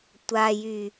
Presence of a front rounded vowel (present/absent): present